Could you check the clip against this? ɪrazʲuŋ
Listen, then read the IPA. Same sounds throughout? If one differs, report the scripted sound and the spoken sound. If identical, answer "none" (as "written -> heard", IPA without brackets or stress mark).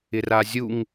none